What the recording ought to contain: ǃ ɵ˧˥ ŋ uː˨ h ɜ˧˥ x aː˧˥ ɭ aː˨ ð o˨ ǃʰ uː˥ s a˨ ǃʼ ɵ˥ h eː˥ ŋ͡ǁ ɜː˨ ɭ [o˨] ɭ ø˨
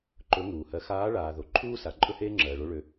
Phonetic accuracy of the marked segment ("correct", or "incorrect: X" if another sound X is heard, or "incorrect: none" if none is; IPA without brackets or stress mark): incorrect: o˧˥